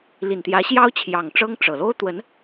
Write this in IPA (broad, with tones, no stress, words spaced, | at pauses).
li˨˩nt̪jä˧˥ɕjɑ˥ʊ̯ t͡ɕʰjɑ˨˩ŋʈ͡ʂɤ˥ŋ ʈ͡ʂɤ˨˩ lo˥ʊ̯t̪wə˧˥n